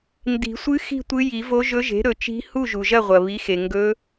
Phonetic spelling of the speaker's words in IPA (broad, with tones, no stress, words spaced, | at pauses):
ndi̤˨˩˦sʷɨ˧˥ xi̤˥˨tʷɨ˧˥ji˨˩˦vo˧˥ ʒɵ˧˥ʒe̤˩˥ɾɵ˨˩˦t͡ʃi̤˧˥ hu˥˨ʒu˩ʒɐ˥˨ʁʷɐ˩ βi˩˥xe˩ ŋɡɵ˧˥